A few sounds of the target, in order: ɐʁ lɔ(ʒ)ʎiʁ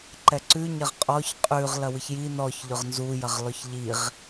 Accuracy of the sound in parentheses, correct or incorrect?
incorrect